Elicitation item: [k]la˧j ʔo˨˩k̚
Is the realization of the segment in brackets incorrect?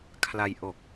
yes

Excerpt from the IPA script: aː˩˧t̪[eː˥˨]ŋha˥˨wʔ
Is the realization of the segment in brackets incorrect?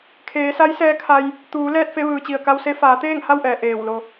no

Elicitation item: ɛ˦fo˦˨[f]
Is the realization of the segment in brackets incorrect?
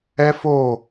yes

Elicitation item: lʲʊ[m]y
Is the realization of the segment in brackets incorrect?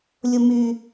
no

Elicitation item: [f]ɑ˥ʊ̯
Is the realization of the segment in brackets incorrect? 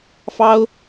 no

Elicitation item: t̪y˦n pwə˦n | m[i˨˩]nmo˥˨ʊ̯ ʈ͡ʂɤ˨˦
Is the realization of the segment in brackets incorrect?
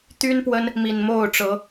no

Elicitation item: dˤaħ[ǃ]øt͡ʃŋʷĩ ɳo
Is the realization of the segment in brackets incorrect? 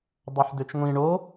yes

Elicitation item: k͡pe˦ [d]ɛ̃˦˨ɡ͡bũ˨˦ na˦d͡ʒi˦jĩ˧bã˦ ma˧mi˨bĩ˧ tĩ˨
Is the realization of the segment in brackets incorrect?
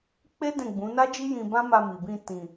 no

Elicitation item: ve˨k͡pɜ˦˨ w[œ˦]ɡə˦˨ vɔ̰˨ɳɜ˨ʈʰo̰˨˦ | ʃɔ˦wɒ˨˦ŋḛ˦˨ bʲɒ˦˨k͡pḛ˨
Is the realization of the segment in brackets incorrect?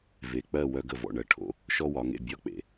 no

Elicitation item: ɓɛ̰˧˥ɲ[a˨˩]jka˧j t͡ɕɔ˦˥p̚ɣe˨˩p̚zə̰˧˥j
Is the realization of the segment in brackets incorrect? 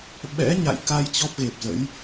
yes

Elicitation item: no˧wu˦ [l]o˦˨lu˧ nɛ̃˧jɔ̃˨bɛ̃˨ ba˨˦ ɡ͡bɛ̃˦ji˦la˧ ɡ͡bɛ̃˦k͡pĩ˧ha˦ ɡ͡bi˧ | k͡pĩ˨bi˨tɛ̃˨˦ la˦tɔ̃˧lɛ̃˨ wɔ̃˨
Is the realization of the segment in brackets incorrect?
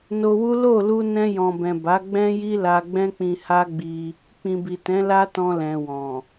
no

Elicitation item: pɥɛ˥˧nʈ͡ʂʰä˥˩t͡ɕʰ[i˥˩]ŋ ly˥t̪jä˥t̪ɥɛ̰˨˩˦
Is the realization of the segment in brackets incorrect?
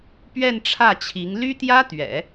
yes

